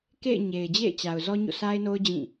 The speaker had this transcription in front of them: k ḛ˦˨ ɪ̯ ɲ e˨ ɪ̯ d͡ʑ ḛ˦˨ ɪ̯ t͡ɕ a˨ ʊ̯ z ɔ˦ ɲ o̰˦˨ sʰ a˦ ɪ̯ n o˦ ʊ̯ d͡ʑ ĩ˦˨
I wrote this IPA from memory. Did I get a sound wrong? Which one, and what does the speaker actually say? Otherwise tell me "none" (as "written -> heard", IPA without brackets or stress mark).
none